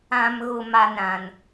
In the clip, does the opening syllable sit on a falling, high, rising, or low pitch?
low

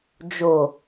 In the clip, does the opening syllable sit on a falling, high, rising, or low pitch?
low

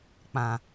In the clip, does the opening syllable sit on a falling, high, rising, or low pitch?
low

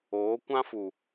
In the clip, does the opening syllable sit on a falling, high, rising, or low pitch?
rising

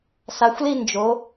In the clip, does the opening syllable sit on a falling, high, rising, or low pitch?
rising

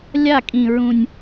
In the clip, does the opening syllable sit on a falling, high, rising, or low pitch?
falling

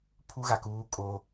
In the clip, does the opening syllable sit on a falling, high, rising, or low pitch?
high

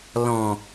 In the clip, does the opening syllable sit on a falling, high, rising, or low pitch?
low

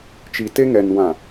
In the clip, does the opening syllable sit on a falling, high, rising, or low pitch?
low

